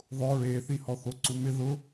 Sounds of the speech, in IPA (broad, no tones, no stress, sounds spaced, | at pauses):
ðˤ ʊ ɹ e θ i h ɔ θ o ǀ u m ɪ ð ʊ